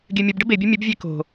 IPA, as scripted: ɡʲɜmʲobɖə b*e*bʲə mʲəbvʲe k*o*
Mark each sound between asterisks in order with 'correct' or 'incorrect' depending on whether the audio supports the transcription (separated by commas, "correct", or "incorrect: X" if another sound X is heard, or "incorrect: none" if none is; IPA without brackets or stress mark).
correct, incorrect: o̤